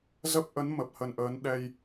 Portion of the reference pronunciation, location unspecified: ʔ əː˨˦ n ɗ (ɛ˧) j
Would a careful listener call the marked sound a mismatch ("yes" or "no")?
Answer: no